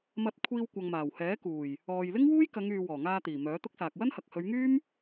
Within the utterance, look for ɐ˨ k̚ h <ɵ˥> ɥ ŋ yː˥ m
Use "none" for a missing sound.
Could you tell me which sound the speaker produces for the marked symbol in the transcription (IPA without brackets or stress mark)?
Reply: ɵ˨˧